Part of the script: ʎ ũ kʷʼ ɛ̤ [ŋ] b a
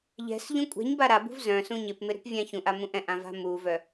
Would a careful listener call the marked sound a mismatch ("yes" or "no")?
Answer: yes